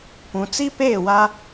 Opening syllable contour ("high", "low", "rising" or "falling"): low